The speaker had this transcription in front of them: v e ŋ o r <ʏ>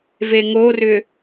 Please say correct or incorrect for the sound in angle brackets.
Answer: correct